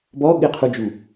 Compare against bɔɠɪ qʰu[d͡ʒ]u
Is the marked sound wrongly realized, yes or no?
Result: no